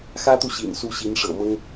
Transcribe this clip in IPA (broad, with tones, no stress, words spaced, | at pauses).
xä˥t̪u˨ ɕḭ˨˩nsu˧˥ɕi˧˥n ʂɤ̰˨˩mɤ˥ŋ